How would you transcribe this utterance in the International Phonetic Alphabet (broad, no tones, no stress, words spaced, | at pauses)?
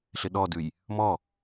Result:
ɬɪɗɔdʉj | mɔ